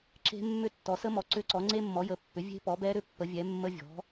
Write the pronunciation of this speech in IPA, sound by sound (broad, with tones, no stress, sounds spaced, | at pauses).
ǁ e̤˦˥ mː ʏ˦˥ tː ɔ˩˥ s ə˦˥ m ɔ˩˥ ǀ ʏ˦˥ ǀ ɔ˩˥ ŋ͡ǀ e˦˥ mː ɔ˩˥ j ə˩˥ pː ʏ˩˥ vʲ e̤˦˥ p ɔ˩˥ b ɛ˦˥ ɾ ʏ˦˥ pː ə˩˥ vʲ ɛ˩˥ mː ə˦˥ vʲ ɔ̤˩˥